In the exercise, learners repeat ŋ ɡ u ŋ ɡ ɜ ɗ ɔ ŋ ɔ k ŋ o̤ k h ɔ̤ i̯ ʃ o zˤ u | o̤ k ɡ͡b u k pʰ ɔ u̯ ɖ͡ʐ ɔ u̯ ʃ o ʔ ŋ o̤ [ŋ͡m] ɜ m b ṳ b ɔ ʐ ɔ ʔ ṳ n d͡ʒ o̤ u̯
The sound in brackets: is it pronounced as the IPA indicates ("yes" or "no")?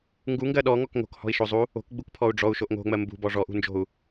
yes